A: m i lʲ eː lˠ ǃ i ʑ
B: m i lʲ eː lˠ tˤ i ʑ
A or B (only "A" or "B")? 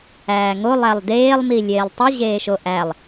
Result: B